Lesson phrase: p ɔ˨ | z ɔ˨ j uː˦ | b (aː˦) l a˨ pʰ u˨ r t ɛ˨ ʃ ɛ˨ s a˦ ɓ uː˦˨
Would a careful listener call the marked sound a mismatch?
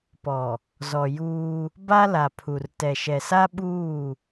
yes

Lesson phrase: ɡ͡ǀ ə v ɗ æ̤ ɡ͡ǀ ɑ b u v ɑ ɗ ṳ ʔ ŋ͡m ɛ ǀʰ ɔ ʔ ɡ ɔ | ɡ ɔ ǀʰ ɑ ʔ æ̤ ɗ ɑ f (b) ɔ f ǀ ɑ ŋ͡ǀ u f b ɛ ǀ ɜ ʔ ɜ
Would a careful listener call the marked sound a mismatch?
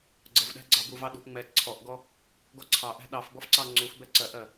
no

